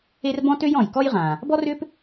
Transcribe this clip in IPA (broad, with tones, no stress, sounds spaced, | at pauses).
e˥ r b ɔ̃˥ t ø˥ j ɔ̃˩ j k ɔ˥ j ʁ ã˩ | b ɔ˥ r ʏ˥ p